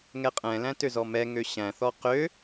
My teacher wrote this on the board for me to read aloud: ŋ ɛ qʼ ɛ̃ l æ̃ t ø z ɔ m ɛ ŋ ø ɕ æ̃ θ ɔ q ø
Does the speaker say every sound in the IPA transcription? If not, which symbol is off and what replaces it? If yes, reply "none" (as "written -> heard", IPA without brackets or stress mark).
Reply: none